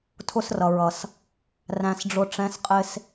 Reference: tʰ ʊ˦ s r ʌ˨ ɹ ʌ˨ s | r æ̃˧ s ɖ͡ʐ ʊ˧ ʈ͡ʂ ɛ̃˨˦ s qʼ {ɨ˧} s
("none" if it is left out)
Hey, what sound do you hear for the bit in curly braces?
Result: ɪ˧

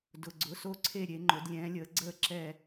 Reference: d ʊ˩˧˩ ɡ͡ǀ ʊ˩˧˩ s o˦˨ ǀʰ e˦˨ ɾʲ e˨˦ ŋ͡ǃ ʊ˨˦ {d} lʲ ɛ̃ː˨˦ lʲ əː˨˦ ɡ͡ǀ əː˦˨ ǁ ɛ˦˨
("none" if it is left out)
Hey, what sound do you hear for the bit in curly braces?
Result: d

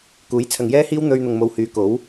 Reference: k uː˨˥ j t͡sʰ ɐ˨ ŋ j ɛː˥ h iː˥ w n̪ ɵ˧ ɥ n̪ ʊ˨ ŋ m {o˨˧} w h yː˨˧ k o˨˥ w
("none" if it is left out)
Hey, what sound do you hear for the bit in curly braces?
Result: o˨˧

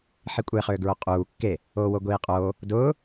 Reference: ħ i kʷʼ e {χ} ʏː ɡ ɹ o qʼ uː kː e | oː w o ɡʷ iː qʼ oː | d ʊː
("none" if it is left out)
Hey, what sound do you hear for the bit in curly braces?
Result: χ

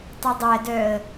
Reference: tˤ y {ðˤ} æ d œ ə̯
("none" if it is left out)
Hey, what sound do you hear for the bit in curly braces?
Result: dˤ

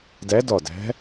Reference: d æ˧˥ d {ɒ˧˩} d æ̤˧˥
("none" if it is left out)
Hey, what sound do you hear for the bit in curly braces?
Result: ɒ˧˩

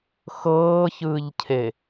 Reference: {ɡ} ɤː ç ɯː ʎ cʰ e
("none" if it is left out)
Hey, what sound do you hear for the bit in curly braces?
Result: x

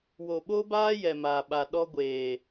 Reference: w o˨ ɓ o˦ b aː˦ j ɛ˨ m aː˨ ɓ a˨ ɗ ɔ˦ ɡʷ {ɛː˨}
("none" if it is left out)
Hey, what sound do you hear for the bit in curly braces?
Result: eː˨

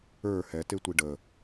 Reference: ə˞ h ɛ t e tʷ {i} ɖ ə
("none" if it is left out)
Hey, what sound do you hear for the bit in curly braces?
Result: i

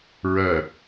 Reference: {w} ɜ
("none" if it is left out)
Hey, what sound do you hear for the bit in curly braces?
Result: ɹ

